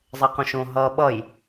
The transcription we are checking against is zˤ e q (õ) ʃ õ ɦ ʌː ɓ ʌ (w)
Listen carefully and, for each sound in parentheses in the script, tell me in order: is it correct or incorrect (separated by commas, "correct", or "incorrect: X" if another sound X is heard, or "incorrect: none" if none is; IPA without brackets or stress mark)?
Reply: correct, incorrect: j